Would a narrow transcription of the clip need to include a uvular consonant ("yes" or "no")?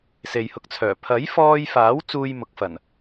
no